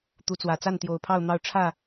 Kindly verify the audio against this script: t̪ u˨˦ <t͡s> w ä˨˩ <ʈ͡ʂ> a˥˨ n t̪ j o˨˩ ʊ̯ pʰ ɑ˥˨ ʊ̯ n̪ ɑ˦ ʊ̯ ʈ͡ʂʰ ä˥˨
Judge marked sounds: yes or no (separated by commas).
yes, no